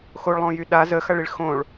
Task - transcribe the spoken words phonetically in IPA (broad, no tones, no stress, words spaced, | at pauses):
xoɭlˠõjy ɗa zəxɐɭiɭ xõɭ